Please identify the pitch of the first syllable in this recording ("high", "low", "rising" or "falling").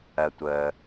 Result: low